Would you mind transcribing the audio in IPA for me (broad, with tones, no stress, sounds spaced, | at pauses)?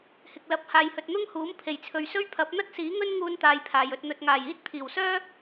h ɪ˨ k̚ l ɐ˨˥ p̚ h aː˨ j h ɵ˨ t̚ n̪ ʊ˥ ŋ h uː˨˥ m pʰ e˨˩ j t͡sʰ ɵ˨ ɥ s ɵ˥ ɥ pʰ ɐ˨˥ p̚ n̪ ɐ˥ t̚ s iː˨˥ ŋ ɵ˥ n ŋ uː˥ n t̪ aː˧ j pʰ aː˨ j ɵ˨ t̚ n̪ ɵ˨ t̚ ŋ aː˨˩ j iː˥ t̚ t̪ʰ iː˨˩ w s œː˥